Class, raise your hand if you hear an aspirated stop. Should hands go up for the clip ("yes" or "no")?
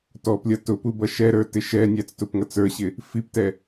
no